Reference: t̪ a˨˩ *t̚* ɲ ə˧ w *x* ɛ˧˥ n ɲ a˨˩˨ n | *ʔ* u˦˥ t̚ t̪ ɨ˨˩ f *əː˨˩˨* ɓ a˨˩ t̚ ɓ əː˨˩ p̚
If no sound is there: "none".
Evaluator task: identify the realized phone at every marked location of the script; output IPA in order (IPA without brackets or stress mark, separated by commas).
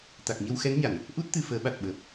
k̚, x, ʔ, əː˨˩˦